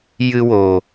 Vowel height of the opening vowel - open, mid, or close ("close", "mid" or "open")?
close